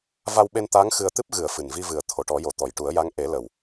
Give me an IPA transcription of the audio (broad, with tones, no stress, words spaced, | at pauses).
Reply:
va˧wɓe˧n t̪a˧˥ŋ xɨ˧ə̯t̪ɨ˦˥p̚ ɣɨ˨˩˨ə̯ fɨ˨˩nvi˧vɨ˨˩ə̯ t̪ʰo˨˩˨ʈɔ˨˩˦jo˨˩˨ t̪ɔ˨˩˨jʈu˨˩˦ə̯ja˧˥ŋ ʔe˨˩˦ lə˨˩w